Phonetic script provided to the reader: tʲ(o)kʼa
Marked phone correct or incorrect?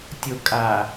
correct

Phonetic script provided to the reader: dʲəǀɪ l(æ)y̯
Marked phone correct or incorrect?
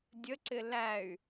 correct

